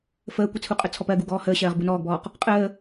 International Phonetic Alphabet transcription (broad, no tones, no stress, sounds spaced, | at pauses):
f əː kʷ ɪ t͡sʰ u qʼ ə t͡sʰ ɔ p ɜ ɡ u ɡ ɔː h əː ɕ ɜː ʁ b u n ɔː ɡ b ɔː q | qʼ əː